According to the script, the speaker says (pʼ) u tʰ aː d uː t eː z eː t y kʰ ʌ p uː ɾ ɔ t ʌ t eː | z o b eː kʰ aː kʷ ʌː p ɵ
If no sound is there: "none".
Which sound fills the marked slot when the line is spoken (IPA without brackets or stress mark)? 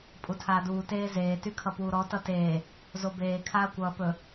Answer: pʼ